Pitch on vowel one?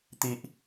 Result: high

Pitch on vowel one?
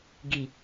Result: low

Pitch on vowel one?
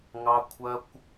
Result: high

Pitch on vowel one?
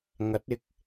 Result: rising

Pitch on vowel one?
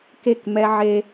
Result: falling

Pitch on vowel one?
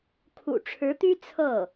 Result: low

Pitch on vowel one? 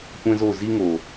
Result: high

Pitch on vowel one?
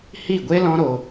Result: falling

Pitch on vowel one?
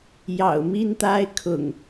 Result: low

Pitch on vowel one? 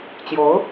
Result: rising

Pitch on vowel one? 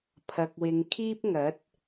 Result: low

